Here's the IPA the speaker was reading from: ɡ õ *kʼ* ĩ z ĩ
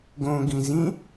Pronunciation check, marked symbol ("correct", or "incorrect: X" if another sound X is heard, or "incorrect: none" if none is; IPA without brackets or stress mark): incorrect: ɡ